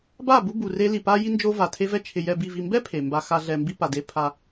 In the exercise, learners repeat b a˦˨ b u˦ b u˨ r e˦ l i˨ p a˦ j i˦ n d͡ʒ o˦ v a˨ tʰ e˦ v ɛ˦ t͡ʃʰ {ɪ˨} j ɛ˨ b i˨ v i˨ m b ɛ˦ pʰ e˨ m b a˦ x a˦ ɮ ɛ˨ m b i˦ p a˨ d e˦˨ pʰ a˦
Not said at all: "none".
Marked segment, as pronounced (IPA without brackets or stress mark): ɪ˨